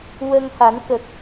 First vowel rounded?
no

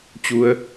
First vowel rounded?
yes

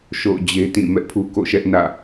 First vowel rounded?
yes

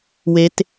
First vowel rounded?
no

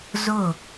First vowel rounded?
yes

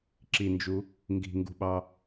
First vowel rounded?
no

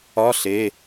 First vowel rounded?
yes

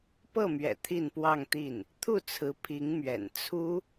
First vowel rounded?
no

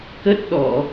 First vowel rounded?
no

